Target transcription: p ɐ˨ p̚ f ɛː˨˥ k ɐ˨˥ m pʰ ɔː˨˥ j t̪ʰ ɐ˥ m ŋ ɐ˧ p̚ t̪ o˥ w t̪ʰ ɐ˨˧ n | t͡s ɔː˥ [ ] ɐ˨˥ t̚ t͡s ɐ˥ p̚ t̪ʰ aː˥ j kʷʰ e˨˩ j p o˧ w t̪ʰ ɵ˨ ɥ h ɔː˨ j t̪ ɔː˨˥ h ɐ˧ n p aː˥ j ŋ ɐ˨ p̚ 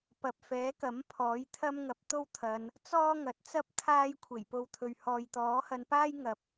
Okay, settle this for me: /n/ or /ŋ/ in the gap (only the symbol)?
ŋ